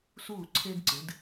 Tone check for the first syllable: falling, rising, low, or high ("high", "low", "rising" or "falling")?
falling